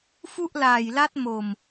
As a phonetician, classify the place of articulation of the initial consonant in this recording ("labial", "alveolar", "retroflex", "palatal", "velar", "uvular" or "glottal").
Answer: labial